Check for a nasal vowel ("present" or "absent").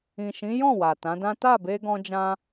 present